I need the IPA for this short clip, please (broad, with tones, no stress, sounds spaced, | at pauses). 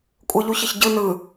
kʷʼ ɯ˨ ʎ u˨ ç ə˨ ç ɟ ɯ˨ n ɯ˨